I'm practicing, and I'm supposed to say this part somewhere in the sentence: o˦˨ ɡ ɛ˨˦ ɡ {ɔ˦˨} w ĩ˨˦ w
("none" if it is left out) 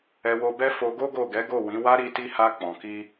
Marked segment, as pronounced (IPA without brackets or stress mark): o˦˨